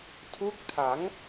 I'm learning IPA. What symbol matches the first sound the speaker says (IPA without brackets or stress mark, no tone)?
tʰ